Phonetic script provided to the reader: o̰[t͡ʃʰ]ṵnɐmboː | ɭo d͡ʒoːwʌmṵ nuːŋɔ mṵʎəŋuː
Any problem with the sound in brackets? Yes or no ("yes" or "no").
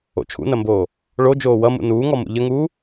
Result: no